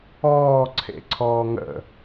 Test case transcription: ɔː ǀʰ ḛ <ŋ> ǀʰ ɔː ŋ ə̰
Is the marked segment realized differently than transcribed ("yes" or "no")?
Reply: yes